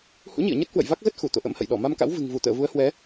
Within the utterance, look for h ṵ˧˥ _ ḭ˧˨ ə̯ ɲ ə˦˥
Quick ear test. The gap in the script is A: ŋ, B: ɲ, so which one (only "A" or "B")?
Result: B